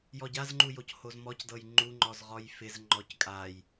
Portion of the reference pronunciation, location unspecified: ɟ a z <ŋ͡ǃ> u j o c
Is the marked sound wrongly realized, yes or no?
no